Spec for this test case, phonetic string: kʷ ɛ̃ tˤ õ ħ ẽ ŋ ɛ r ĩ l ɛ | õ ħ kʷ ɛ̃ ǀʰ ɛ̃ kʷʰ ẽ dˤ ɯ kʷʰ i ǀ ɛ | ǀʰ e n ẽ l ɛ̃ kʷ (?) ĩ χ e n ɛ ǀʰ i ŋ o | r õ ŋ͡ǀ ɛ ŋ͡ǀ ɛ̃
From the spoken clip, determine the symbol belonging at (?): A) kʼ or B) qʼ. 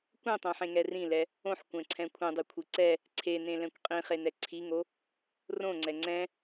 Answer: B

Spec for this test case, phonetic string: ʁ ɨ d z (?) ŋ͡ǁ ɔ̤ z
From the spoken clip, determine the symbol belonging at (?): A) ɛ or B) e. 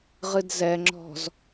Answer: A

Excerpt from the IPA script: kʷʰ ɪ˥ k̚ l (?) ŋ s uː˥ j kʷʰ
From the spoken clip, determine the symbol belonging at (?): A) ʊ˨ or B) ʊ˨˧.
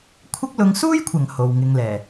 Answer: B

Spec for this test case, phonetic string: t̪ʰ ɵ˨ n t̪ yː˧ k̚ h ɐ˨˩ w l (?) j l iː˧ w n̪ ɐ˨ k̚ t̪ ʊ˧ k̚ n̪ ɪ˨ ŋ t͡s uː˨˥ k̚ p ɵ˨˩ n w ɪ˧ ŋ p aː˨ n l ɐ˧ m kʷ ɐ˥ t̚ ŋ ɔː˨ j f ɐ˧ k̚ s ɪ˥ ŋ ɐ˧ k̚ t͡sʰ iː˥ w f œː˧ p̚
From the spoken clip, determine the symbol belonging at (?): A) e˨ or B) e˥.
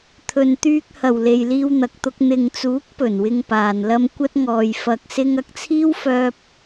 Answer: A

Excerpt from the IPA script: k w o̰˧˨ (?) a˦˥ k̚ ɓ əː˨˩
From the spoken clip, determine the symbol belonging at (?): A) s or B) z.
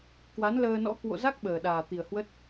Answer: B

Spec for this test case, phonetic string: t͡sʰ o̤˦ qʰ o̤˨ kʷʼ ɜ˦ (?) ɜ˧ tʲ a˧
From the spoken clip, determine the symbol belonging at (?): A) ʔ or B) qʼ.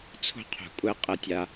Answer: B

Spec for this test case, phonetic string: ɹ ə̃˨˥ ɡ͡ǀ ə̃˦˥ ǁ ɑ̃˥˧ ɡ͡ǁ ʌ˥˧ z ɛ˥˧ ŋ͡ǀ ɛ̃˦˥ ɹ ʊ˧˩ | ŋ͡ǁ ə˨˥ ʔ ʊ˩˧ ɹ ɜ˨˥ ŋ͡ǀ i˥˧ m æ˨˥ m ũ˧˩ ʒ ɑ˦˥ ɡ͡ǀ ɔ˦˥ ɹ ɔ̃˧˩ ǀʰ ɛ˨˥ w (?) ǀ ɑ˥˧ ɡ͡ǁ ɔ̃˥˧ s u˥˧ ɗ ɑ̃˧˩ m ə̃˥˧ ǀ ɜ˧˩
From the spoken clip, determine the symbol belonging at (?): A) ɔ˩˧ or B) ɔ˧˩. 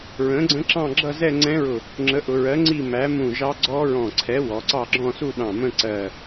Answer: A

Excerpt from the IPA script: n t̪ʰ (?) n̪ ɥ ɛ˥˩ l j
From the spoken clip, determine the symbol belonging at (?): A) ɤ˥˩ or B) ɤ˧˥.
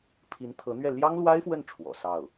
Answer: B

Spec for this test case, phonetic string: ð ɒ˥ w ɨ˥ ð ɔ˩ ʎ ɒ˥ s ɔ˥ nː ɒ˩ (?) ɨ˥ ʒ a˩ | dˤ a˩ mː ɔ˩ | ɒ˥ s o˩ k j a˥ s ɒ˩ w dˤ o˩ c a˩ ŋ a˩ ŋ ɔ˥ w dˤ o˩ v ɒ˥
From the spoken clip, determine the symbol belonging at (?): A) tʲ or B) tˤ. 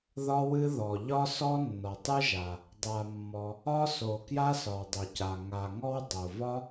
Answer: B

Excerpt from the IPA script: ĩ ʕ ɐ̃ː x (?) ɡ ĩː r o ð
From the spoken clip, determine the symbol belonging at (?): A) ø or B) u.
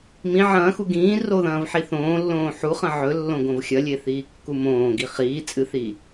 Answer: B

